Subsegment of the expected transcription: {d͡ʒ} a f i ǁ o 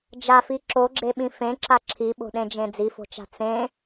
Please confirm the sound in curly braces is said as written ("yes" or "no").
yes